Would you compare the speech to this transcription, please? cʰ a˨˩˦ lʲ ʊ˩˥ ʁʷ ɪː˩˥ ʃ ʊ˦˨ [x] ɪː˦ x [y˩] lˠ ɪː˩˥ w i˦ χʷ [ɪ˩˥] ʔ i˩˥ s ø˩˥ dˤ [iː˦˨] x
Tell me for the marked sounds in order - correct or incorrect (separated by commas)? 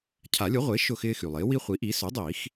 correct, correct, incorrect, incorrect